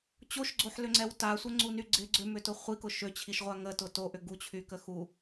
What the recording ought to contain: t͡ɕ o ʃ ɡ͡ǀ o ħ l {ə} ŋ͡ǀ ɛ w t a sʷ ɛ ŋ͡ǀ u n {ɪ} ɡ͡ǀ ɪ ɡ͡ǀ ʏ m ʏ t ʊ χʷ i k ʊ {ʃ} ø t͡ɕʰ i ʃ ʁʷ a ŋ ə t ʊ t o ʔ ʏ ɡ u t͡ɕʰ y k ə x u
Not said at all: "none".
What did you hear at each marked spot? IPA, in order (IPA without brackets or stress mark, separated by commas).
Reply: ʏ, y, ʃ